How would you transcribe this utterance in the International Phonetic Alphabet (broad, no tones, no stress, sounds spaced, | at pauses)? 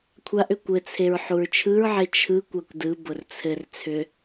kʷʰ a ʔ ʏ kʷ ɘ t͡sʰ e ɹ ħ u ɹ t͡ʃʰ ɯ ɹ ʕ e t͡ʃʰ ɯ kʷ a kʷ d ɯ b ʊ r t͡sʰ ɘ r t͡sʰ ʏ